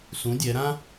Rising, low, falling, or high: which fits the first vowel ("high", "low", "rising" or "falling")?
rising